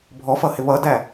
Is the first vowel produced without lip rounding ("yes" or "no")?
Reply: no